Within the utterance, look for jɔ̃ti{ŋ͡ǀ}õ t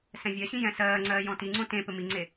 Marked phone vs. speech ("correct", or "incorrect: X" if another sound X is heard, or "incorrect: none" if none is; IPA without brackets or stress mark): correct